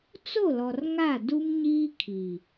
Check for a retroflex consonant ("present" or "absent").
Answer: absent